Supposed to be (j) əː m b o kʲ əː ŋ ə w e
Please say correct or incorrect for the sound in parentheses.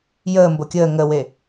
correct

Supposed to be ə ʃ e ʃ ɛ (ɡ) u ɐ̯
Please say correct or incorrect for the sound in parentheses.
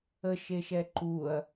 incorrect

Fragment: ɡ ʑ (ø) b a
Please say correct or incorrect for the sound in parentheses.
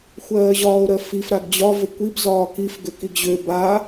correct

